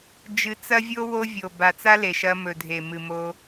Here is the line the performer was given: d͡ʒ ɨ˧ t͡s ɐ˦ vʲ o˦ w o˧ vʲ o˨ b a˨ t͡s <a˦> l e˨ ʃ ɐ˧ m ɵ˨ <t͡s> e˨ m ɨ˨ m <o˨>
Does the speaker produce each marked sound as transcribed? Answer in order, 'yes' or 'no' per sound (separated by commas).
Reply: yes, no, no